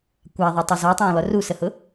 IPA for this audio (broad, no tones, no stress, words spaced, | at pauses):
kʷaðˤotˤo zɔtˤõːlˠɵ rusəhʊ